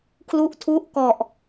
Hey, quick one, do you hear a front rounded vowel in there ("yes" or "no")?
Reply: no